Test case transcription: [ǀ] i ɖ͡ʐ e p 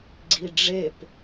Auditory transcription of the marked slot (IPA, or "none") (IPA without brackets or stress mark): ɡ͡ǀ